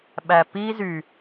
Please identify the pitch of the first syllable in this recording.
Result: low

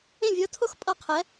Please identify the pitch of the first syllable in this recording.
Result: falling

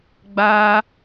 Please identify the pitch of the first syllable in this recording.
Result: high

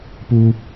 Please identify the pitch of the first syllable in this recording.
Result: high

